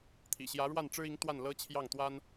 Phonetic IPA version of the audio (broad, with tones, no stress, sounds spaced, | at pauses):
t̪ʰ ḭ˨˩ ɕ j ä˧˥ ɻ w a˥˩ n ʈ͡ʂ ɻ̩˥ i˧˥ ŋ t̪ w a˥˩ n l ɤ˥ t͡ɕʰ j ɑ˥˩ ŋ t̪ w a˥ n